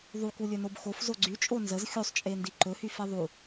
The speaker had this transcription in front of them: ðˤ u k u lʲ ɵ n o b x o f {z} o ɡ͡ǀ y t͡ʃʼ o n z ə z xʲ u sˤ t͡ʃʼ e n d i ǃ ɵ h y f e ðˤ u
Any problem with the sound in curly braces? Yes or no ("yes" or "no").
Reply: no